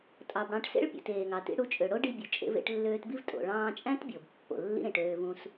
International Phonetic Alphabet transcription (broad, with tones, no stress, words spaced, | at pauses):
tʼɑ˩bɽɑ̃˧ʈ sḛ˥ɭpʲṵ˩teː˩ŋɑ˩ tḭ˧ɽu˧t͡ʃʼø˩ ɽo˥ɖi˧ bʲu˩ t͡ʃʼḛ˧vḛ˧ʈlːøː˧tbi˥v tʼo̰˩ɭɑ̃ː˧t͡ʃʼæ̃˥t bʲo˩b pːo̰˩lːḭ˥ ɾẽ˩ʈøː˧vũ˧s